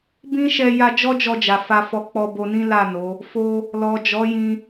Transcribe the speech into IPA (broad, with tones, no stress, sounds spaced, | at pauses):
b ĩ˦ ʃ ɛ˧ j a˧ d͡ʒ ɔ˦ d͡ʒ ɔ˧ d͡ʒ a˨ f a˧ f ɔ˧ k͡p ɔ˧ b o˧ n ĩ˦ l a˦˨ n o˨˦ | f o˦ | l ɔ˨ d͡ʒ ɔ˨˦ j ĩ˧